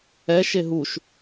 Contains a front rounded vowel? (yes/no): no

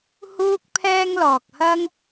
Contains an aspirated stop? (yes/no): yes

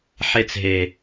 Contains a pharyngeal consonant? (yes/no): yes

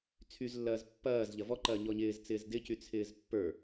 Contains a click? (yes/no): yes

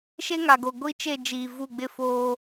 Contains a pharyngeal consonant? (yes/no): no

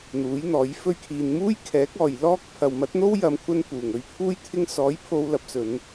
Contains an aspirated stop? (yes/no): yes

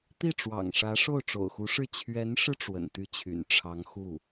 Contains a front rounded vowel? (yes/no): yes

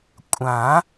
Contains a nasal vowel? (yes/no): yes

